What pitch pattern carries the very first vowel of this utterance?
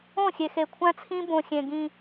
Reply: falling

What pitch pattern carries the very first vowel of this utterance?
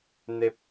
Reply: high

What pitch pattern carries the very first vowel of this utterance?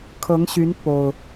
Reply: rising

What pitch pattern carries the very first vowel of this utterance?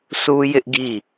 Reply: high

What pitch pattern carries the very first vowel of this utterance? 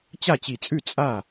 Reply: falling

